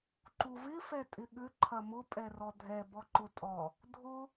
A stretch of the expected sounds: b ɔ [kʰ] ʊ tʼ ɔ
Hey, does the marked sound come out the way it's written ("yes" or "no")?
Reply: no